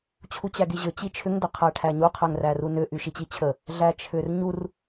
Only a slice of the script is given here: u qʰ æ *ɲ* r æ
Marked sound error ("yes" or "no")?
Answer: yes